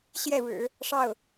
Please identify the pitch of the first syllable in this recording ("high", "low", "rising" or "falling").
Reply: falling